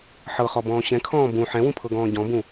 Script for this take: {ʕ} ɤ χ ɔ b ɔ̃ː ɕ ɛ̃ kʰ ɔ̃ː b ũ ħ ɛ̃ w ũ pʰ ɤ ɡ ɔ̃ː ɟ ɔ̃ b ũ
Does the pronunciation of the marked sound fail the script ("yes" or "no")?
yes